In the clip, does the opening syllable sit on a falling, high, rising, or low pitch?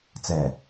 low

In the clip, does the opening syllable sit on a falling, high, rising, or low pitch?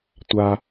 low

